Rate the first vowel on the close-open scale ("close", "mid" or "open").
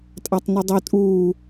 open